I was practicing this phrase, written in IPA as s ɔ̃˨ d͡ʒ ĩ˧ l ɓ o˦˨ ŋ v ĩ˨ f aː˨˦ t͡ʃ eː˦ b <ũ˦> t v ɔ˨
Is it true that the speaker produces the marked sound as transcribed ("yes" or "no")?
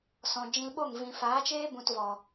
no